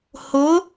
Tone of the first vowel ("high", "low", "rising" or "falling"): rising